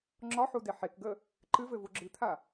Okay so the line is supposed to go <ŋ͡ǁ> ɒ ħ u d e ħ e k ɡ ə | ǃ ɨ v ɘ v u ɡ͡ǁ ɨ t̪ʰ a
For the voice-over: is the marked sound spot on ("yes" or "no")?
yes